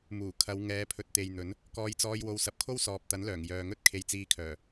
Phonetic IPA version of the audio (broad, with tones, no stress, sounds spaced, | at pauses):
m uː˨˩ kʰ ɐ˨˧ w ŋ ɛː˨˧ pʰ ɵ˨ t̚ t̪ e˨ j n̪ ɵ˨˥ n | k ɔː˧ j t͡s ɔː˧ j w o˨˧ w s ɐ˨ p̚ kʰ o˥ w s ɔː˨ p̚ t̪ ɐ˨˥ n l œː˨˩ ŋ j œː˨ ŋ ɵ˥ t̚ kʰ e˨ j t͡s iː˨˧ kʰ œː˨˩